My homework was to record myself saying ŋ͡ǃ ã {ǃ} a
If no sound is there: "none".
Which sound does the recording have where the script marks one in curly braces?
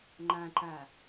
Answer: ǃ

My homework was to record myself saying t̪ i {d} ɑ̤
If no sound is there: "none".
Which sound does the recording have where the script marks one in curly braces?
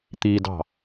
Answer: d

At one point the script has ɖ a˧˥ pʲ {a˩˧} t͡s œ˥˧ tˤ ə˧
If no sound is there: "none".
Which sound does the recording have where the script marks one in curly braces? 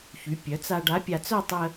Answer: a˧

